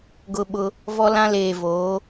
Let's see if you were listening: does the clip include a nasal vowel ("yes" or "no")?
yes